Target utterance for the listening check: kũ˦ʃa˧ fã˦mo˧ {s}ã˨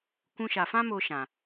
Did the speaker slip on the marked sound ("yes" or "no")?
yes